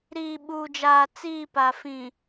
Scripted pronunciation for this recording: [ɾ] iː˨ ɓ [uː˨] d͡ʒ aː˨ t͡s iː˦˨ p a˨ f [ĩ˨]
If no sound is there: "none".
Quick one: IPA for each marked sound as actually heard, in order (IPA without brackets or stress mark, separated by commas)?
ɾ, uː˨, ĩ˨